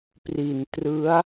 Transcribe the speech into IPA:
pri˨˩ntrɯ˦˥a̯

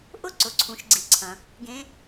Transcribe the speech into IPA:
ʔʊ˥ ǀʊ˩ǀʰũ˩˧ʃɡ͡ǀi˩ ǀʰɐ̃˩ | ɡẽ˧˥

